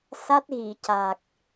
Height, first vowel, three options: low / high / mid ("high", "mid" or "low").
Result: low